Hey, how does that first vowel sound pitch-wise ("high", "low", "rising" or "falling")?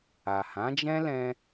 low